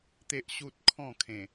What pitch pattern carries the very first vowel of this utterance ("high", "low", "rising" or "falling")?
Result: high